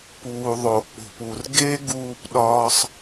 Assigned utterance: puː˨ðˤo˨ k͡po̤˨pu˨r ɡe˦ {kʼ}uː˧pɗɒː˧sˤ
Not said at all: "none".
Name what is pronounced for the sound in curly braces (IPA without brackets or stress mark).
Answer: ɡ